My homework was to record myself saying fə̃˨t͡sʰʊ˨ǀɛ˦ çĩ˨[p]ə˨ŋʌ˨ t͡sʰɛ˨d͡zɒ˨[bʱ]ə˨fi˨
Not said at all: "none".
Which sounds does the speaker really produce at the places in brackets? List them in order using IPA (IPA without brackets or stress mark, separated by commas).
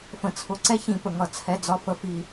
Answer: p, f